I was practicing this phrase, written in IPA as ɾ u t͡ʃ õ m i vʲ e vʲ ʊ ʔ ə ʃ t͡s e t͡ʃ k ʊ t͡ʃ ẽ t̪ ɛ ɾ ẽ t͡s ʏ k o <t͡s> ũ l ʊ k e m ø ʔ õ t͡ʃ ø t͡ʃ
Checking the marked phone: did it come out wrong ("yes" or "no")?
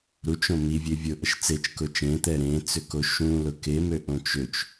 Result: yes